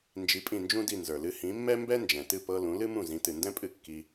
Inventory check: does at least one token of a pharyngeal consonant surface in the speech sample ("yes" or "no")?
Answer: no